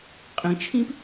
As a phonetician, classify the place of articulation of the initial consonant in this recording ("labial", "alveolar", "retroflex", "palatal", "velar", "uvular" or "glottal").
uvular